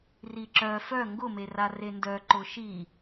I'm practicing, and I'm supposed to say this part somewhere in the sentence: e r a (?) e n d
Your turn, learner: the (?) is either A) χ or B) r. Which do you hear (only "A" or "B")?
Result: B